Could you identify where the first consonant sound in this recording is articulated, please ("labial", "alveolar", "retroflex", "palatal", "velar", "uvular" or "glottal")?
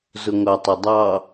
alveolar